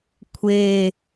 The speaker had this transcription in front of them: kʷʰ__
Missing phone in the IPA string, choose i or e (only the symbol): e